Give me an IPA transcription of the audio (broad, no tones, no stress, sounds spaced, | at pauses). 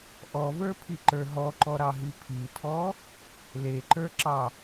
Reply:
ʔ ɔ v ə˞ pʰ i ǃ ə˞ ɦ ɔ ǃ ɔ ɾ ɑ ɦ i pʰ i tʰ ɔ | l e ǃ ə˞ ǁ ɑ